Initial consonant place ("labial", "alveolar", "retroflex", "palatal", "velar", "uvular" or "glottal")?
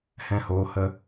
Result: glottal